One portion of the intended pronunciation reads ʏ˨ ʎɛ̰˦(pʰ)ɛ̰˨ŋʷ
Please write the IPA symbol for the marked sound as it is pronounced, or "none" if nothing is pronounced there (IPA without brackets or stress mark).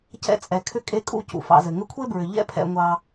pʰ